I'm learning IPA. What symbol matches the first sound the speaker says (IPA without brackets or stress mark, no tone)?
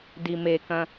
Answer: d